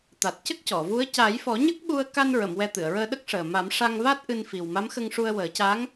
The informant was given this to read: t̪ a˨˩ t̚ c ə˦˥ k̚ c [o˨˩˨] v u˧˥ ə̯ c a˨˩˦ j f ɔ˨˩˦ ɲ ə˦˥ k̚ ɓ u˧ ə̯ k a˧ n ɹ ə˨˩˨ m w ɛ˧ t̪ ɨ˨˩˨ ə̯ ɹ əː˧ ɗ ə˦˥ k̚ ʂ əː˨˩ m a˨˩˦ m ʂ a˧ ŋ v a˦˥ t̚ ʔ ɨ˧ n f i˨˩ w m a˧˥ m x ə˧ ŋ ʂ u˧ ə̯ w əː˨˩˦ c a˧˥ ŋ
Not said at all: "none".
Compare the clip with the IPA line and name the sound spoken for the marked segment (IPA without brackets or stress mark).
ɔ˨˩˨